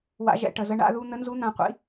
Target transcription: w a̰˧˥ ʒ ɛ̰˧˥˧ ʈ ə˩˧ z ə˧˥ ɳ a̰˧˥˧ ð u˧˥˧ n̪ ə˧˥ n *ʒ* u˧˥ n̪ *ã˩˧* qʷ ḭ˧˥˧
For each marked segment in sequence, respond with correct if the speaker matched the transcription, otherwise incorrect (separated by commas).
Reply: incorrect, correct